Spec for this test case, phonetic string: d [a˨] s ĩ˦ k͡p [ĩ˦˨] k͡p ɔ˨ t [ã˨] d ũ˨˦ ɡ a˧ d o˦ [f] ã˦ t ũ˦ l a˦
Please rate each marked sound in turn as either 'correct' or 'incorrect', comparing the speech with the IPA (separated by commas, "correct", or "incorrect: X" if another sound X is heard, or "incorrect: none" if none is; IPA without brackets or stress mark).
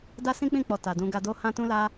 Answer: incorrect: a˦, correct, incorrect: a˨, incorrect: h